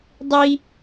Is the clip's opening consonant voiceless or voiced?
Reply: voiced